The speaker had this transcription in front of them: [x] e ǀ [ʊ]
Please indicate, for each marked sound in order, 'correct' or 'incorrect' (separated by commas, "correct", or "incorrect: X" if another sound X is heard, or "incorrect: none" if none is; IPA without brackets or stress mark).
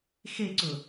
correct, correct